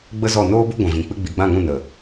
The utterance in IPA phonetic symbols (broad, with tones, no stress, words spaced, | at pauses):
ɡ͡bə˦zɔ˦˨ noː˦bu˦ ɡʷɛ̃˨vĩ˨ k͡pɨ˧ɡ͡bi˨ɡ͡bã˦˨ŋũ˦˨ nə˨